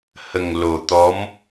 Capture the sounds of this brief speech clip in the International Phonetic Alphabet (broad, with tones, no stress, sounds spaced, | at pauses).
h ə˨˩ ŋ l o˨˩ t̪ ɔ˧˥ m